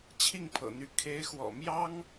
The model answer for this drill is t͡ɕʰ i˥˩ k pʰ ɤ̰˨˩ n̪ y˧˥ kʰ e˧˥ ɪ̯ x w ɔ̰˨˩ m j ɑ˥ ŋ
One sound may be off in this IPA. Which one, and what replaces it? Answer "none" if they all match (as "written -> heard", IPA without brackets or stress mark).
k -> ŋ